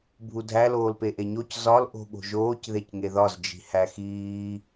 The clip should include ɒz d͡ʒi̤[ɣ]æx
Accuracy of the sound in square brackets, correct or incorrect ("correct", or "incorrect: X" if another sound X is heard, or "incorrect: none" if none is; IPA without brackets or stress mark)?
incorrect: h